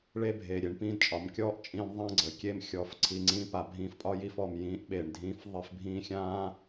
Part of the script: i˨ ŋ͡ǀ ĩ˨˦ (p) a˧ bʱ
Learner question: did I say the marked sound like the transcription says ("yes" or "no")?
yes